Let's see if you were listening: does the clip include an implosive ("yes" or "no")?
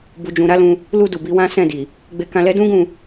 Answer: no